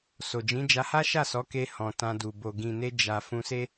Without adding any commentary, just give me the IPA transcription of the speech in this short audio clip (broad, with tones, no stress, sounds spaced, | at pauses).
s o˨ d͡ʒ ĩ˨˦ d͡ʒ a˧ h a˦ ʃ a˦˨ s ɔ˨˦ k e˧ h ɔ̃˨ t ã˧ d u˨ b o˨ ɡ ĩ˨ n e˧ d͡ʒ a˨ f ũ˧ s e˦